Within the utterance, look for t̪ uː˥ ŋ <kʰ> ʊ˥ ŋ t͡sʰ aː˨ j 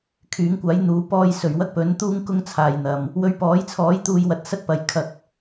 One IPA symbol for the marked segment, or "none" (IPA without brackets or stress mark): k